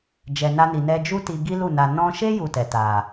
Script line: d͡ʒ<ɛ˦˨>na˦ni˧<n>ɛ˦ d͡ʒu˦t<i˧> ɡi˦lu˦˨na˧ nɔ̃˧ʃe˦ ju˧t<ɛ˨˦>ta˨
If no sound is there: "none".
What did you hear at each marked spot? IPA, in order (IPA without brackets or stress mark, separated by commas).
ɛ˧, n, i˧, ɛ˨